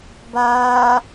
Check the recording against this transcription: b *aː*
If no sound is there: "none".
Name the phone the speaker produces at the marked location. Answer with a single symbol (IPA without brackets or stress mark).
aː